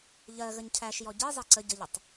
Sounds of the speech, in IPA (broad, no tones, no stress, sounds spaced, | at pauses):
ʎ ɜ ɣ ə ɲ cʰ æ ʃ j ɔ ɟ i zˤ ɛ ǀ ə ɟ ə ʎ ə tˤ